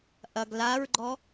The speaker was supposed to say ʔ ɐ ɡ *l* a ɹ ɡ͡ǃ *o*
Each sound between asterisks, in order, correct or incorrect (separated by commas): correct, incorrect